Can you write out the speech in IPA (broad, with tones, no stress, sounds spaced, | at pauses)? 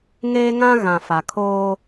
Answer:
ŋ eː˦ ŋ ã˦ ɣ ã˨ f a˨ kʰ oː˦